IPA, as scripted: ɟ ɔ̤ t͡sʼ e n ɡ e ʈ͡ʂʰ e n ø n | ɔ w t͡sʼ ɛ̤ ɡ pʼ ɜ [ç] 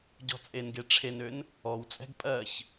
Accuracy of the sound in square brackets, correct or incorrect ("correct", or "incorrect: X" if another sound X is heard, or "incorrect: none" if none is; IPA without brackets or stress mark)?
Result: correct